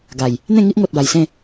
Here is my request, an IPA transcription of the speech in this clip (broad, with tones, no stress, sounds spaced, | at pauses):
ɡ a˨˩ j | n̪ ẽ˥˧ ŋ i˦ ʔ ŋ o˨ t̚ b a˨˩ j s ẽ˥˧